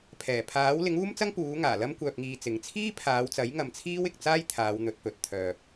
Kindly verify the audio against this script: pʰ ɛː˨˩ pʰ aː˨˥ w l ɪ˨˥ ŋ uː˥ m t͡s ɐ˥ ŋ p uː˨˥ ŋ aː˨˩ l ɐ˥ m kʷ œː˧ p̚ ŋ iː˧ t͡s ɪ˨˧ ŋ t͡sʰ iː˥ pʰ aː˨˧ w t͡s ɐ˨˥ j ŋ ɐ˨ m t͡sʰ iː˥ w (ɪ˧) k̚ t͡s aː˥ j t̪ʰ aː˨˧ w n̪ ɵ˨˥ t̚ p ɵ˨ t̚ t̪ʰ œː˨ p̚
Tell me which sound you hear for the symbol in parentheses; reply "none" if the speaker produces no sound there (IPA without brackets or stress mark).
ɪ˨